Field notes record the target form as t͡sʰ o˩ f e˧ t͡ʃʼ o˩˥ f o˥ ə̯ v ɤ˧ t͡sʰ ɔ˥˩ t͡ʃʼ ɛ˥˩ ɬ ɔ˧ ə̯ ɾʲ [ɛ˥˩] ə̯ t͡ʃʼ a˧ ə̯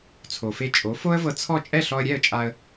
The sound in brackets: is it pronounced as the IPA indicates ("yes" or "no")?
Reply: yes